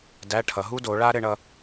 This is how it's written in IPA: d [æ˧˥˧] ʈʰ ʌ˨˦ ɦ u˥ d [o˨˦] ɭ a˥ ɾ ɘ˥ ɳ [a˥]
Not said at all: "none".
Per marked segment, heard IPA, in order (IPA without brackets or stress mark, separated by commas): æ˧˥˧, o˨˦, ʌ˥